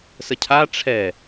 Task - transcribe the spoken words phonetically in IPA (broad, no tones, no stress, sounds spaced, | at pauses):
s ə cʰ a ʈ͡ʂʰ ɛ